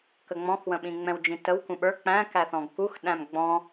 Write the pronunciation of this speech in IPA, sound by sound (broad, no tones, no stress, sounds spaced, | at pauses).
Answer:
k ə ŋ͡m ɔ̃ x w ə̃ ɓ ĩ ŋ͡m ɛ̃ w d͡ʒ ĩ t ə w k ũ ɓ ə˞ k͡p æ̃ k æ θ ɔ̃ ɡ k u x ɗ æ̃ m ɡ͡b ɔ̃